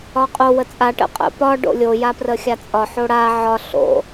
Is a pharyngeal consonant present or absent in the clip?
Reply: present